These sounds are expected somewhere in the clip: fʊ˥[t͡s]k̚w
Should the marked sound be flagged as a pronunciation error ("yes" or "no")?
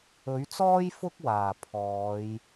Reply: yes